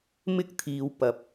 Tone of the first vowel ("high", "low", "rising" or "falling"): high